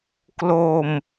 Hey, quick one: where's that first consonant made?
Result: velum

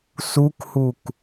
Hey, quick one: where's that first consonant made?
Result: tongue tip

